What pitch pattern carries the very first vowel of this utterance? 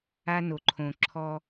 high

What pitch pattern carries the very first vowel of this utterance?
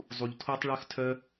low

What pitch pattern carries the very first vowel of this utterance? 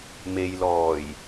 low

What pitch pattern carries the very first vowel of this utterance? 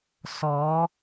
rising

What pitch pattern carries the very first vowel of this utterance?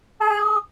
high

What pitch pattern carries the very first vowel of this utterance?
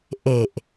low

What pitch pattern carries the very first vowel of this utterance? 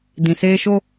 low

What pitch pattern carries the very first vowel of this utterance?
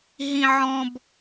high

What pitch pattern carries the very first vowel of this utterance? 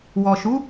low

